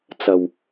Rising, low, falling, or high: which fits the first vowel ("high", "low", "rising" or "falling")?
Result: low